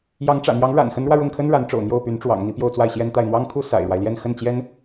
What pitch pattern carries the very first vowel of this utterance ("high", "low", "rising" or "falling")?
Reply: rising